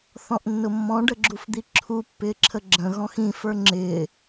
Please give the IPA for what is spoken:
θ ɔ̃ ʔ nː ʊ mː ɔ̃ ɖ ə ɡ͡ǁ u f d̪ i ǁʰ u pː ɪː ǁʰ ə ɡ͡ǁ ə̃ ɣ ɔ̃ x ĩ f ə˞ ŋ͡ǁ ɪː

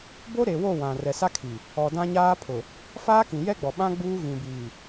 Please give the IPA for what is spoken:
b o˦ ɾ e˨ w o˦˨ w ã˨ r ɛ˨ s a˦ kʰ i˨ | ɔ˨ d ã˦ ɲ aː˦ pʰ ʊ˨ | f aː˦ k ĩ˨ j ɛ˦ ɡ͡b ɔ˨ ɓ ã˦ ɡ͡b uː˦ ɣ ĩ˨ b iː˨

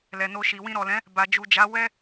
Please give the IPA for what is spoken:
l ɛ˨ n o˧ ʃ i˨ w ĩ˧ ɾ ɔ˨ l ɛ̃˨˦ | b a˨ d͡ʒ u˨ d͡ʒ a˨˦ w ɛ˦

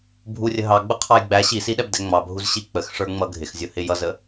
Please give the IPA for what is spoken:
bʱ u rʲ ə ɦ ɑ ɡ͡b ʊ qʰ ɑ j ɡ͡b æ ɕ i s i ɗ ɛ b d ɛ ŋ͡m ɑ bʱ u z ɕ i k͡p ə x ʂ ə˞ ŋ͡m ʌ ɡʱ ɪ x zʲ ʊ h ɪ j ʌ z ə

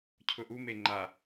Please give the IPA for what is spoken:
cʰ ʊ ʔ u m e ŋ͡ǃ a

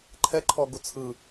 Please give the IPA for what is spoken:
ǃʰ ɛ ǃʰ ɔ ɡ u t͡sʰ ɯ

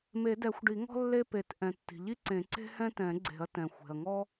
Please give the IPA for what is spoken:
m e˨˩˦ d ɛ˨˩˦ xʷ ɖ i˨˩˦ ŋ ɔ̤˦ lː e˦ p e˨˩˦ t ʔ ɛ̃˩ tː i̤˩ ʎ i˦ ǀ ẽ˨˩˦ ǀ e̤˦ h ɛ̃˦ t ɛ̃˨˩˦ ɡ͡ǀ e̤˨˩˦ ɐ̯ t ɛ̃˩ xʷ e̤˩ ɐ̯ ŋ ɔ˦

